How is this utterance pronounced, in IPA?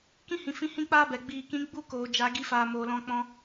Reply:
k ĩ˦ h ĩ˨ f ĩ˧ h ĩ˦ k͡p aː˦ b ɛ˨ ɡ͡b iː˨ k ĩ˨˦ ɡ͡b u˦ k oː˨ d͡ʒ a˨˦ ɡ i˧ f aː˨ m oː˨ l ɔ̃˧ k͡p ɔ̃˧

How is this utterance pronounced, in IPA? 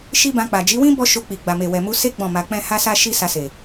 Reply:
ʃ i˦ b ã˧ k͡p a˨ d͡ʒ i˨˦ w ĩ˦ b ɔ˦ ʃ o˧ k͡p i˨ ɡ͡b a˨ m e˨ w ɛ˨ m u˧ s e˦ ɡ͡b ɔ̃˦˨ m a˧ k͡p ɛ̃˦ h a˦ s a˦ ʃ i˦ s a˧ s e˨

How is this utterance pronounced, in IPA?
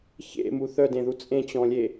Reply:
ç ḛ m u θ œ d ẽ ð u t͡sʼ ẽ t͡ɕ ɔ̃ lʲ e

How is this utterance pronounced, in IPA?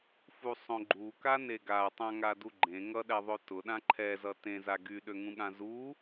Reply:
f u sˤ õ ɡ͡ǃ u k a n e ɡ a tˤ ã ŋ a d u ɡ͡ǃ ẽ ŋ ʌ ɗ ɛ ðˤ ø t ʊ ɗ ã ǃʰ ɛ z ʌ t ẽ z a ɡ y ɗ ø ŋ ũ ɠ ã z u

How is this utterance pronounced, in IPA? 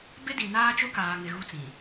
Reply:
b ɪ˦ d i˨ n aː˦ t͡ʃ ʊ˦ k aː˨ ŋ ɪ˨ ɣ u˦ t͡s ĩ˨

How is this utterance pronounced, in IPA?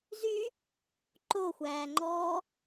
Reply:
z y | ǃ o xʷ æː ŋ͡ǃ ɔː

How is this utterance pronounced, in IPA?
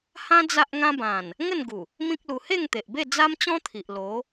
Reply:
h ã˦ d͡z a˦ ʔ ŋ ã˦ b ã˨˩ n | ŋ ə˥˧ n ɡ u˨˩ | m ĩ˦ k̚ l u˧ h e˥˧ ŋ t̪ e˨ ʔ b e˥˧ d͡z a˦ m t͡ɕ ɔ̃˦ t̪ʰ i˨ ʔ l o˨˦

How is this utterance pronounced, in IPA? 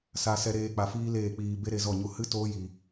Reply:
s a˧ s ɛ˧ ɾ eː˧ k͡p a˧ f iː˦ l eː˦˨ k͡p iː˧ b e˦ ɾ e˧ z ɔ˦˨ ɲ u˧ h ɨ˦ t oː˦ j iː˧

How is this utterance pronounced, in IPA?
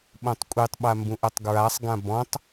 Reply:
ɓ õ tˤ kʷʼ i tˤ ɓ a m b ũ ʔ ɐ tˤ ɡ ɹ a sˤ ɡ ã b ɔ̃ tˤ

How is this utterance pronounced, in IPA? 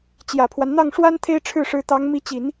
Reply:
t͡ɕ j ä˨˩ pʰ w a˦ n n̪ ɑ˥˩ ŋ ʂ w a˥ n t̪ʰ e˥ ɪ̯ ʈ͡ʂʰ ɻ̩˥˩ ʂ ɻ̩˧˥ t̪ ɑ˧˥ ŋ m i˧˥ t͡ɕ i˨˩˦ n

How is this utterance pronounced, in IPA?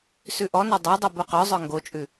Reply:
s ʉ ʔ ɔ n o dˤ œ dˤ ʉ b o q œ zˤ œ ŋ ɡ o t͡ʃʼ ʉ

